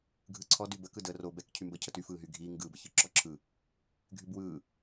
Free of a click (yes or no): no